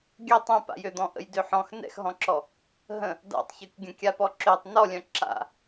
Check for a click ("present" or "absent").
present